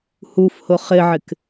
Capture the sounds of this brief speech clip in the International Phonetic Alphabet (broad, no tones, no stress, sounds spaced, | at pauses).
h u f h ʊ χ ɪ ʕ ɪ k